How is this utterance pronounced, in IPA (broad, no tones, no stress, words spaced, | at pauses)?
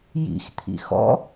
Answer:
jḭxt̪ʰḭ xɔ̰